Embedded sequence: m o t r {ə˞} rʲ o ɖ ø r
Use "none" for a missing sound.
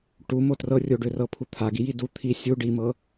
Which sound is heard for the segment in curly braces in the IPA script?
ɤ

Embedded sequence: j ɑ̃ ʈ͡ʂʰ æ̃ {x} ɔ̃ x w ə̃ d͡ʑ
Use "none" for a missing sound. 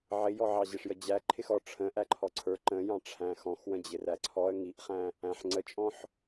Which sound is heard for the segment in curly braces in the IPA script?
x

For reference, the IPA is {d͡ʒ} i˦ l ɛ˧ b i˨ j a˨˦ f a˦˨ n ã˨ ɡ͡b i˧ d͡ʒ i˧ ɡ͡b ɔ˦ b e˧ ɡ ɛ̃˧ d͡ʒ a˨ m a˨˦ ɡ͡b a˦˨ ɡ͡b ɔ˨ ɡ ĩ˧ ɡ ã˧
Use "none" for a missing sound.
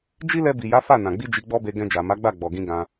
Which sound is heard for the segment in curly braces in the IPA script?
d͡ʒ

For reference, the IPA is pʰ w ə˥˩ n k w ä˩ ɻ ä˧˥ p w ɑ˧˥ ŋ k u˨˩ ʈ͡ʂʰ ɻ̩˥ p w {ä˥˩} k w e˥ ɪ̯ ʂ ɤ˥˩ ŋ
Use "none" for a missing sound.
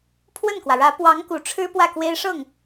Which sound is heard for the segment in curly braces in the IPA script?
ä˥˩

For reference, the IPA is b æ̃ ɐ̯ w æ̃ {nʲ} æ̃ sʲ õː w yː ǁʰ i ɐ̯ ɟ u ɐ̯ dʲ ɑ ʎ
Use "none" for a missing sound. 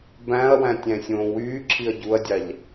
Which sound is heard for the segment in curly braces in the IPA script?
tʲ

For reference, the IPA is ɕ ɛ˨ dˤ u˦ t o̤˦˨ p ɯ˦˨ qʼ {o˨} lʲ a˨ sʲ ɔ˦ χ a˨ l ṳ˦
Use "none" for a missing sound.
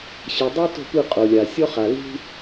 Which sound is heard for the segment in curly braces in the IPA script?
o˨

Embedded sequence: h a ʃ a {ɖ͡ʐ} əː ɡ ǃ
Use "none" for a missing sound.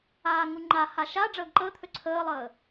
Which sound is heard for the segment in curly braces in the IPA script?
ɖ͡ʐ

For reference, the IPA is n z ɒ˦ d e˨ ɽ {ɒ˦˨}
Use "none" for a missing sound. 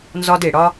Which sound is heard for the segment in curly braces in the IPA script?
ɒ˦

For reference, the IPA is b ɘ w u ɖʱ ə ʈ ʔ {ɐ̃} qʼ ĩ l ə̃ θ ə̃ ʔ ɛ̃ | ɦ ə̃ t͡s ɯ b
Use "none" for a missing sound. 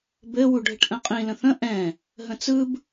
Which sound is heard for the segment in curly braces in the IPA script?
ə̃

